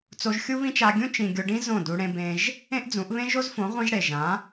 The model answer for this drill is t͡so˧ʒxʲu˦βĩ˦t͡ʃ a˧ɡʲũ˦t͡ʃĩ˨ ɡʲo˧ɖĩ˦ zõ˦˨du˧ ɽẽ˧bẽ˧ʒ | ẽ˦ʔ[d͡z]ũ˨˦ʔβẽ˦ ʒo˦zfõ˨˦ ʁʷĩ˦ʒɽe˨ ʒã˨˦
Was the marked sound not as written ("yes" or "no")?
no